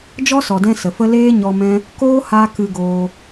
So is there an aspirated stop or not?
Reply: no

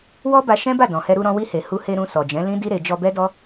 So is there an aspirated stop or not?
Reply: no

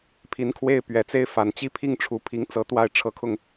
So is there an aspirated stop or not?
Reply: yes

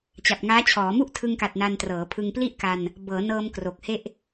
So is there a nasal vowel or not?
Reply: no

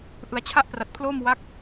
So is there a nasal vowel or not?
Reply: no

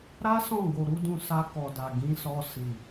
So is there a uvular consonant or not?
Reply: no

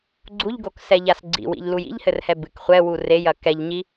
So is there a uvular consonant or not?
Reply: yes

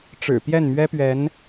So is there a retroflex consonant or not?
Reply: yes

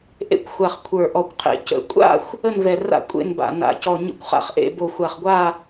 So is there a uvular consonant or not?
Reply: yes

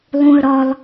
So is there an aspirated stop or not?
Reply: no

